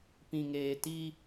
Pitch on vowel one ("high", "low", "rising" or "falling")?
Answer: low